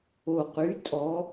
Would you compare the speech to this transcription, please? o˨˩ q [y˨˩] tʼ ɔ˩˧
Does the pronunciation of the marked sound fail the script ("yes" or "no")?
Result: yes